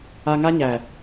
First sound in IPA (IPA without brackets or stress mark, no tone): a